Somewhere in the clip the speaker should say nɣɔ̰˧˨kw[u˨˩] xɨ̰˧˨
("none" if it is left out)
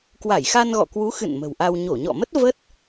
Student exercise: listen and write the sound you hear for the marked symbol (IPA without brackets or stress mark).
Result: u˨˦